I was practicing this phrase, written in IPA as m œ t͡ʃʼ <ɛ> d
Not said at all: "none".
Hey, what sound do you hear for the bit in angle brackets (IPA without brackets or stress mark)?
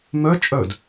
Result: œ